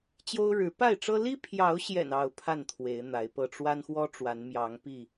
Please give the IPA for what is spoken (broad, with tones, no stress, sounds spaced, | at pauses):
t͡ɕ j o˦ ʊ̯ ɻ ɻ̩˨˦ p a˥˨ ɪ̯ ʈ͡ʂ ɤ˦ l i˦ pʰ j ɑ˨˦ ʊ̯ ɕ j ɛ̰˨˩ n ɑ˥˨ ʊ̯ pʰ a˥˨ n t̪ʰ w e˨˦ ɪ̯ n̪ a˨˦ ɪ̯ p ɤ˥˨ ʈ͡ʂ w a˦ n x w ɔ˦ ʈ͡ʂ w a˨˦ n m j ɑ˨˦ ŋ p i˥˨